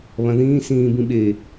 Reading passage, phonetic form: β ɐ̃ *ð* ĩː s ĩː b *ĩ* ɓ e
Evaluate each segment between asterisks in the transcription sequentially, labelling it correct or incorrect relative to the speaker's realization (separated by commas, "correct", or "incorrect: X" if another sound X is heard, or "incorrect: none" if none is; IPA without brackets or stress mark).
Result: correct, correct